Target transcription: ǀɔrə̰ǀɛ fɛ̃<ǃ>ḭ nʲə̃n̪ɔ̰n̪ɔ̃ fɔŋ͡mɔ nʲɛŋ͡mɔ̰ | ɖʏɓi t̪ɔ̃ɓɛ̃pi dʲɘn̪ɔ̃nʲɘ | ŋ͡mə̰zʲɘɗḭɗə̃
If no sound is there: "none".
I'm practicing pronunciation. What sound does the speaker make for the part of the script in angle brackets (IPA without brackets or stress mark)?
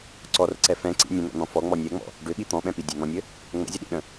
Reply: ǀ